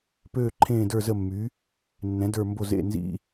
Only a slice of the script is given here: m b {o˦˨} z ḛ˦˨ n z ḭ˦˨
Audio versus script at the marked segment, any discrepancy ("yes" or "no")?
no